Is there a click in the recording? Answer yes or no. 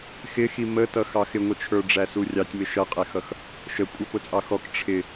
no